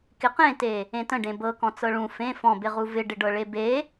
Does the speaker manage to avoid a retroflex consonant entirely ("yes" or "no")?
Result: no